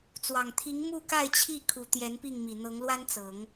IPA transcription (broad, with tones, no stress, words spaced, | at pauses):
t͡swɑ˨˩ŋt̪ʰi˧˥ŋ mu˥˧ka˥˧ɪ̯t͡ɕʰi˥˩ kʰu˨˩ t̪jɛ˧˥npi˥˩ŋmi˨˩ n̪ɤ˧˥ŋlwa˥nt͡sɤ˨˩˦ŋ